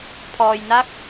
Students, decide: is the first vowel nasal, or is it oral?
oral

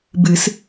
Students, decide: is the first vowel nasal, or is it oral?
oral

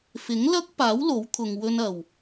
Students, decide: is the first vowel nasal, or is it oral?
oral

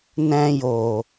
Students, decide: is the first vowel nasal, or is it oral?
nasal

